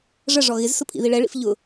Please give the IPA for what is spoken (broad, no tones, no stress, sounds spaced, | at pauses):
ʐ ə ʐ ɔ ɣ ɪ z s ʊ pʰ ḭ ð i ɭ ɛ ɭ ḭ f ʎ ʊ